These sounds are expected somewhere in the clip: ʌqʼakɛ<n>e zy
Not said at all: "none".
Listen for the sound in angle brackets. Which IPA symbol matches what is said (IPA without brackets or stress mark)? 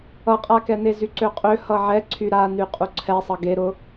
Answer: n